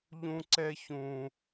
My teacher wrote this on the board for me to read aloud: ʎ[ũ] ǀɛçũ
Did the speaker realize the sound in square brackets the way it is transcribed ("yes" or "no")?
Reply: yes